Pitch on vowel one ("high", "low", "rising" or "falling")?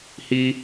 high